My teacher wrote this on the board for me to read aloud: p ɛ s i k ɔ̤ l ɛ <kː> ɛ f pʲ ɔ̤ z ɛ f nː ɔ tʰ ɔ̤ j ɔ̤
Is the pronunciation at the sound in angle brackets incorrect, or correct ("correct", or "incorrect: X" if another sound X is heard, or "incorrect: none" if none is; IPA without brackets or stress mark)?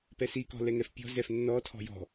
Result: incorrect: ŋ